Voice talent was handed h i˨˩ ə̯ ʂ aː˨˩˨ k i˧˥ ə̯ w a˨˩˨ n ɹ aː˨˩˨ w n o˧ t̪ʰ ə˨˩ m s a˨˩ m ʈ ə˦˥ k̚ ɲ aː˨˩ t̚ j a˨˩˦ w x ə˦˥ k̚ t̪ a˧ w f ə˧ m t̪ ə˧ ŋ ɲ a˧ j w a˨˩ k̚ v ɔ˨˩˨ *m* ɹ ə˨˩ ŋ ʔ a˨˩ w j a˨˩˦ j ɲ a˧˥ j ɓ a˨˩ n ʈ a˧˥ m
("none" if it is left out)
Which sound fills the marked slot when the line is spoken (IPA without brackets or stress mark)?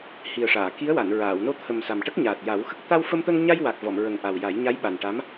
m